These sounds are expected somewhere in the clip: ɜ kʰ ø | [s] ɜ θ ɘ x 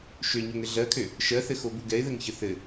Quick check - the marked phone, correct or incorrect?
incorrect